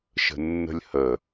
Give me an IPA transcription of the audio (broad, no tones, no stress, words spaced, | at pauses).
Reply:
ʃə̤nːə̤lʲhə